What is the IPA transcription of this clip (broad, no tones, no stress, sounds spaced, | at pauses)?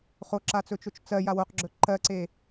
χ o ǁ a t͡s ɵ t͡ʃ o t͡ʃ t͡s ɜ j a w o q ɡ͡ǁ ɵ ǃ ɜ ǀ e